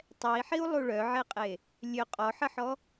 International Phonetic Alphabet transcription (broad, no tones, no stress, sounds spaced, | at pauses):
tˤ ɛ i̯ ħ i u̯ lˠ u ɭ œ ʕ e qʼ e | lʲ ø qʼ ɔ ħ ə ħ ɔ